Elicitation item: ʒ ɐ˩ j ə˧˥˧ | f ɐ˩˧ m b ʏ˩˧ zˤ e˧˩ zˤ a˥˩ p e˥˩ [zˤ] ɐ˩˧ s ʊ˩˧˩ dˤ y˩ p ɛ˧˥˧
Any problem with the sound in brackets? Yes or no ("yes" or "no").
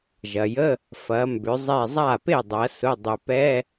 yes